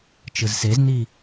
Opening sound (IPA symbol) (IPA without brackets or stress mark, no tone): t͡ʃ